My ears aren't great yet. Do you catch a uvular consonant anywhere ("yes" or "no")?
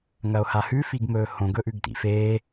no